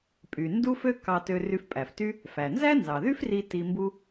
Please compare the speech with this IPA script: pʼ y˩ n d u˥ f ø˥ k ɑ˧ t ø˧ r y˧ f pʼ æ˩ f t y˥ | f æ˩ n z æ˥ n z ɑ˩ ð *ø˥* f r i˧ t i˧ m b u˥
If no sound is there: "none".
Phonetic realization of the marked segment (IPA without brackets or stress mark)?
y˥